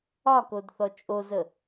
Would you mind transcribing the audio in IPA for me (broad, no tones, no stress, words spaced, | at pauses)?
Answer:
ɒkod θɔt͡ʃʼozə